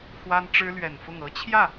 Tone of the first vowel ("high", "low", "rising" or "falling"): high